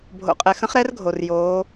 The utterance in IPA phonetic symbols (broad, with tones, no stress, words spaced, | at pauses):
bʱo̰˩qʼɛ˩ xə̃˧˥χɾɛ˧˥r ɡʱo˩rjoː˩˧